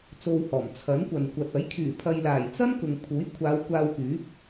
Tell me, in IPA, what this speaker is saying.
t͡s o˧ w h ɔː˨˩ m t͡sʰ ɐ˨˥ n kʷ ɐ˨ n kʷ ɐ˨ t̚ ɐ˨˥ j kʰ yː˨˩ pʰ ɐ˨ j l aː˨˩ j t͡s ɐ˥ n k ʊ˨ ŋ pʰ uː˨˥ j kʷʰ aː˨˧ w kʷ aː˧ w k yː˨˥ p̚

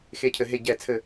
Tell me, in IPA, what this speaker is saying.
x e˧˩˧ cʰ ɘ˩˧ ɦ e˧˩˧ ɟ ɛ˧˩˧ t͡sʰ ɘ˧˩˧

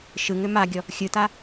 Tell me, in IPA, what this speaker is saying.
ʃ ɯ ŋ ʏ m a ɡʲ ɔ | xʲ ɯ t a

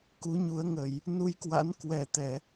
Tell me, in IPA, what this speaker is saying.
k u˨˦ ɲ u˨˦ ə̯ ŋ ə˧˩˨ j | n u˧ j k w a̰˧˥ n k w ɛ˨˩ t̪ ɛ˧˩˨

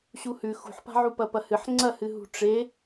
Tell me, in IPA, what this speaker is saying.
ɕ u h ʉ x ṳ ħ p a̤ ʕ u p ɐ p ɐ h ɨ ħ ŋ͡ǀ ɐ h ɨ ɦ ṳ ʈ͡ʂ e

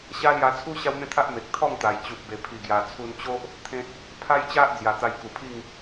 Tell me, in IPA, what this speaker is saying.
ɕ a˦ l j a˧ t͡sʰ u˦ ɕ a˦ w n̪ ẽ˥˧ t̪ʰ a˦ ʔ m e˨ k̚ t̪ʰ ɔ˥˧ ŋ t̪ a˨˩ j t͡ɕ u˨ p̚ b e˨˩ pʰ i˨˩ ɡ j a˨˩ t͡sʰ u˧ n t͡ɕ o˦ ʔ | t̪ʰ ẽ˦ t̚ | pʰ a˦ j t͡ɕ a˦ ʔ d͡z j a˨˩ t̪ a˧ j k u˨˩ pʰ i˥˧ ŋ

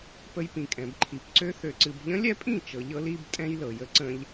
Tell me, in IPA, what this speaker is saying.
p ə˧ j p ĩ˨ kʼ ɛ̃˨ b ǃʰ i˨ p ǀ ø˦ θ ø˧ ǀ ɨ˧ b ʎ ə̃˦ lʲ ɛ˦ pʼ ĩ˦˨ t͡ʃ ɤ˧ ʎ ɤ˦ l i˦ b tʼ ɛ̃˦ j l ɤ˨ j ə˦ ǀ ə̃˧ ʎ

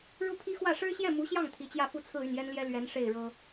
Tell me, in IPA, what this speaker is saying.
ɻ u˥ pʰ i˥ x w ä˥˩ ʂ ɻ̩˥ ɕ j ɛ˥˩ m u˧˥ ɕ j ɑ˥˩ ŋ t̪ʰ i˧˥ t͡ɕ j ä˥˧ f u˥˧ t͡sʰ ɹ̩˥˧ y˥˩ n j ɛ˥ n l j ɛ˥ l ɥ ɛ˧˥ n ʂ e˥˩ ɪ̯ ɻ ɤ˥

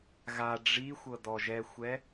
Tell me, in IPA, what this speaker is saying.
ɣ a ɖ͡ʐ i xʷ ɤ d ɔ ʒ ɛ xʷ ɛ

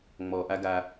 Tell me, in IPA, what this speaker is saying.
ŋ͡m ɔː˨ ʔ a˦ ɡ a˧

